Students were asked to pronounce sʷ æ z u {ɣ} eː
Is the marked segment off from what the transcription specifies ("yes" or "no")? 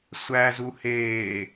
yes